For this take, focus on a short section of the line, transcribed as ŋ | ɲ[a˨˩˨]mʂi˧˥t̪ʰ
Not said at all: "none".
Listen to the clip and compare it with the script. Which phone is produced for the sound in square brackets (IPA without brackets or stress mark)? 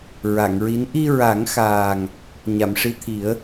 a˨˩˨